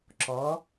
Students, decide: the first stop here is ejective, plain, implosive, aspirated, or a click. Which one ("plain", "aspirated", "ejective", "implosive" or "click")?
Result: click